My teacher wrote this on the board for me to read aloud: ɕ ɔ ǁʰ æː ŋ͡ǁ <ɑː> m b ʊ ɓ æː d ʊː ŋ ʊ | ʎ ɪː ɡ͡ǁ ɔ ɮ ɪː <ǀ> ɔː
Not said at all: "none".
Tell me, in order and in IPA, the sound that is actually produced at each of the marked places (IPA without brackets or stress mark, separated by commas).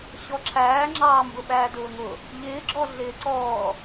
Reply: ɑː, ǀ